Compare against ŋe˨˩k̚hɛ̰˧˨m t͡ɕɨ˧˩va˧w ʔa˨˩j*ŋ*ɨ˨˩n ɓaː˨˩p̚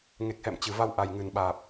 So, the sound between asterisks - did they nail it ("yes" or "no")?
yes